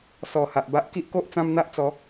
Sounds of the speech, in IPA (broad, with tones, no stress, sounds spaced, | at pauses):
s ɔ˨˩ h a˨ ʔ b a˦ ʔ k i˦ ʔ k o˦ ʔ t͡s ã˦ m n̪ a˦ ʔ t͡s ɔ˨˦